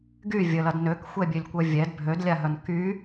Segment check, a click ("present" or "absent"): absent